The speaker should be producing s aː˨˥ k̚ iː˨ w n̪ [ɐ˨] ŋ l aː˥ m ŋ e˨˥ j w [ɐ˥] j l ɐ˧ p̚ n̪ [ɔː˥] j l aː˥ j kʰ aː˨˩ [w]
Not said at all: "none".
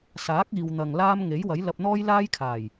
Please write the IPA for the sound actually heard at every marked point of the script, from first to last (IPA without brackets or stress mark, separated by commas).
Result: ɐ˨, ɐ˨˥, ɔː˥, j